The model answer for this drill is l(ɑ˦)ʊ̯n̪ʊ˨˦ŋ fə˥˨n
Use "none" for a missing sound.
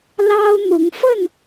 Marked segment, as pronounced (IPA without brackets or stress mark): ɑ˦